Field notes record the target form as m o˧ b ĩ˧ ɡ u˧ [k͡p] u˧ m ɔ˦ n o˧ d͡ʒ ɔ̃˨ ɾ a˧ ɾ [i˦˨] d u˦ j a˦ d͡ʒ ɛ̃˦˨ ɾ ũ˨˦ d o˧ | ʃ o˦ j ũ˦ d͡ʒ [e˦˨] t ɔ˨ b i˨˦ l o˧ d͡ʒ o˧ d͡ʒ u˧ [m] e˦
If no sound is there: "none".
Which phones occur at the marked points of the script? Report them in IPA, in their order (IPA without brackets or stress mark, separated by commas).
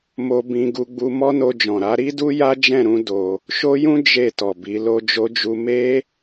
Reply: ɡ͡b, i˦, e˦˨, m